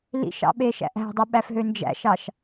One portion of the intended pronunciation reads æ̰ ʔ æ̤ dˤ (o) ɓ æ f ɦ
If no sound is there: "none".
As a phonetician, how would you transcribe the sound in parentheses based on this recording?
o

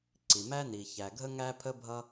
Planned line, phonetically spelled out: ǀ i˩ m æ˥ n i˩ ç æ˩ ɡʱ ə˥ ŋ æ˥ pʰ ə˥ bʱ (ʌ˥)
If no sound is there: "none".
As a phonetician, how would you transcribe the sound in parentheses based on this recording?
ʌ˥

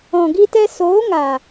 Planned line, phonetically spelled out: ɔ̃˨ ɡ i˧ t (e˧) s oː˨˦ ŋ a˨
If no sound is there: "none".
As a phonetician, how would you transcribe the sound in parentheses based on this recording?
ɛ˧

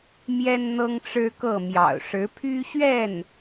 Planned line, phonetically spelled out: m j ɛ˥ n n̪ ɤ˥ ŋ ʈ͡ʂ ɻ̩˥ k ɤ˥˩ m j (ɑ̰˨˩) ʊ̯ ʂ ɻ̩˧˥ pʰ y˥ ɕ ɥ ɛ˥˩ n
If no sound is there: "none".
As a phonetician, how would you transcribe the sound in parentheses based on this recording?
ɑ̰˨˩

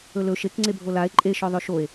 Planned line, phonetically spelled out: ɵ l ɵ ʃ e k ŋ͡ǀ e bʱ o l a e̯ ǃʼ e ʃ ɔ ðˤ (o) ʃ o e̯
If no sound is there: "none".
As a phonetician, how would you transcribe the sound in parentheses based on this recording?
ɵ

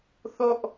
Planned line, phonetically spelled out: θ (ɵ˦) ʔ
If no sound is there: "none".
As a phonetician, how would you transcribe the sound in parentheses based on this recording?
o˦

